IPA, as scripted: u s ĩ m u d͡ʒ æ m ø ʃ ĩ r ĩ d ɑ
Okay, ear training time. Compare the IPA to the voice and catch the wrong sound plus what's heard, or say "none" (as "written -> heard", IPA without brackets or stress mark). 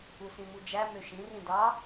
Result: none